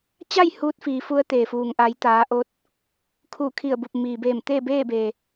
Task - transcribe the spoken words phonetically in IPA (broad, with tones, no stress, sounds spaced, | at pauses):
t͡ɕ a˥˨ j h uː˧˥ t̚ f iː˩˧ f u˧˥ ə̯ t̪ eː˩ f uː˩ ŋ ʔ aː˩˧ j t̪ aː˩˧ ʔ o˧ t̚ | kʰ u˧˩ kʰ i˧˩ ə̯ b u˧˩ p̚ m iː˩ b eː˧˩ m t̪ eː˥˨ b eː˥˨ b e˩